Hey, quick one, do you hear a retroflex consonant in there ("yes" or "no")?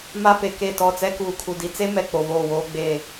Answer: no